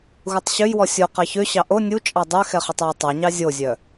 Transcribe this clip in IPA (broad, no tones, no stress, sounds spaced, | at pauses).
ɣ u tˤ ɕ ø j w ɔ sʲ o q ɑ ç ø ɕ ɑ ʔ o nʲ u t͡ʃʼ ɑ dˤ ø x ɛ χ ʉ tˤ j ɔ tˤ ɑ ɲ ɑ zʲ o zʲ œ